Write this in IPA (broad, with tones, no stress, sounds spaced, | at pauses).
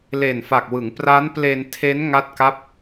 l e˨˩ n f a˨˩ k̚ w ɯ˩˦ ŋ p r a˦˥ n p l e˧ n tʰ e˦˥ n ŋ a˥˩ t̚ k a˥˩ p̚